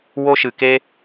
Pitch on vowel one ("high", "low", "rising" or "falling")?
high